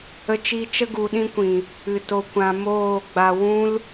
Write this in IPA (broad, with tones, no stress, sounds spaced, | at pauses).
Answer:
ə˧ t͡ʃ i˧ t͡ʃ ə˦ ɡ u˧ ɗ ĩ˦ kʷ ĩ˨ | ɨ˨ t o˧ kʷ ã˧ m oː˦˨ ɡ͡b a˧ w ũ˦ l